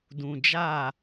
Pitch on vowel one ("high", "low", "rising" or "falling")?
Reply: low